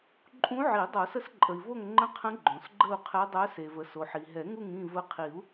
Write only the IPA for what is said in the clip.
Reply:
ǃʼ ũ˧˥ ʕ i˨˩˦ dˤ o˨˩˦ s ə˧˥ s ǃʼ ə˩ i̯ v o˦˨ ŋ ŋ͡ǃ ə̃˧˥ qʰ ə̃˧˥ ɡ͡ǃ õ˩ s ɡ͡ǃ ə˦˨ u̯ qʰ ɛ˧˥ dˤ œ˧˥ s e˩ v ə˩ s o˩ ħ i˩ ɦ ɛ˨˩˦ ŋ u˦˨ ŋ ĩ˦˨ v ə˧˥ qʰ i˨˩˦ u̯

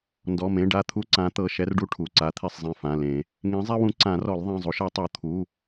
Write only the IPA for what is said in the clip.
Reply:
n d ɔ˩˧˩ m ẽ˩˧˩ ɖ a˦˨ t̪ʰ u˦ ǀ ã˨˥ t̪ ɤ˩˧˩ ʃ ɛ˦ r ɖ u˦ ʈʰ u˩˧˩ ǀ a˨˥ t̪ʰ e˦˨ sˤ zˤ ẽ˦˨ f ã˩˧˩ l ẽ˨˩˦ | ŋ ẽ˨˥ zˤ ɛ˦ w ũ˨˥ ǀ ã˨˩˦ r ɔ˨˩˦ l ðˤ ẽ˩˧˩ zˤ u˨˩˦ ʃ ɛ˨˩˦ tˤ o˨˩˦ t̪ʰ u˩˧˩

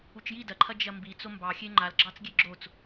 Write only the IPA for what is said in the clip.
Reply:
u t͡ʃ j i d ɐ ǃʰ ɐ d͡ʒ ɐ m b i t͡s o m b ɑ xʲ e ŋ͡ǃ a l ɡ͡ǁ ɑ t͡s ɡʲ e ɡ͡ǁ o t͡s

